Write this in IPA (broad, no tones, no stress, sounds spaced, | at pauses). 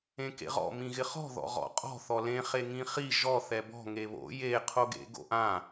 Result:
ẽ k ḛ ʁ ɔ̰ m ĩ ɣ ɪ χ ɔ̤ ð ɔ̰ ʁ ɔ̰ qʼ ɔ̤ θ ɔ l ẽ χ e ŋ ĩ χ i ʒ ɔ θ ɛ b ɔ̤ ŋ e β o̰ j e qʰ o ɡ ḛ ɡ o̰ ʔ ã